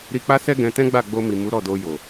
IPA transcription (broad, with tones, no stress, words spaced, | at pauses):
ɾi˧k͡pa˦sɛ˦ ɡɛ̃˧ tɛ̃˦ɡ͡ba˦˨ ɡ͡bo˧mi˨ mu˨˦ɾɔ˦˨do˧ jo˨